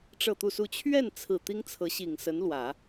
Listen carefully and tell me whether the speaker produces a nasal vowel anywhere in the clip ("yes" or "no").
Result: no